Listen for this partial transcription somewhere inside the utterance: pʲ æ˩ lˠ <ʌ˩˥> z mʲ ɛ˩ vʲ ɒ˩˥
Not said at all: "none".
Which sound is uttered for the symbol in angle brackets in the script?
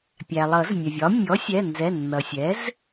ʌ˨˩˦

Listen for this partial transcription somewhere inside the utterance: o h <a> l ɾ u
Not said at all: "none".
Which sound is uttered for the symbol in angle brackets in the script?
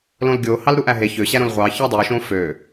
ɑ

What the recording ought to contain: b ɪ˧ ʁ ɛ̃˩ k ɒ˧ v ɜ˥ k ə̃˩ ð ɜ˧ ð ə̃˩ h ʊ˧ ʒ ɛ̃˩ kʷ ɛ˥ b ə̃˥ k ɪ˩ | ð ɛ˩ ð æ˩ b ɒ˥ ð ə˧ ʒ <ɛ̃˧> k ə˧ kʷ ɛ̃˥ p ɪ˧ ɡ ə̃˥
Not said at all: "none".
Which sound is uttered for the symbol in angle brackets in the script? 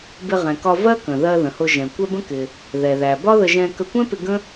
ɛ̃˧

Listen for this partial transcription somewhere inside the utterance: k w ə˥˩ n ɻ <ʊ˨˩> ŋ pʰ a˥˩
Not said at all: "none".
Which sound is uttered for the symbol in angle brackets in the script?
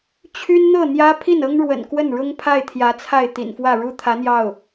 ʊ˥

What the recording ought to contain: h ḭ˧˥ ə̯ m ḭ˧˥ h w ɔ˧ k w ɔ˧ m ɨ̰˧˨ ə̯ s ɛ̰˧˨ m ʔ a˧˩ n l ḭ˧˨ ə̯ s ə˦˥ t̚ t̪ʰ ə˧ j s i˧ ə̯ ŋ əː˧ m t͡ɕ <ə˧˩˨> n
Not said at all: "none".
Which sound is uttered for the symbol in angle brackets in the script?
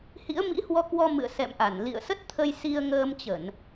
ə˧˩˨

